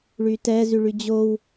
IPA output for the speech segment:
ɭ y t ɛ z y ɭ y d͡ʑ o w

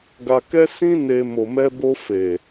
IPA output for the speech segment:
ɡ a˧ k ɛ˦ s ĩ˦ n e˧ m o˨ m ɛ˧ b o˧ f e˨

